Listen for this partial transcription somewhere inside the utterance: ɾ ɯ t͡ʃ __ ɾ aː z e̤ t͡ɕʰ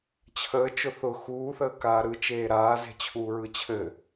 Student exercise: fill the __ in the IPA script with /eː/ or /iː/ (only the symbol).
eː